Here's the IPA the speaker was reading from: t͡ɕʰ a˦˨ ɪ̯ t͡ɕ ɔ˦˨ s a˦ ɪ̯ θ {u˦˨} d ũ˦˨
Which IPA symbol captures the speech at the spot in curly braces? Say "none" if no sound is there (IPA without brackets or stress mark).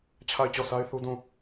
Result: u˦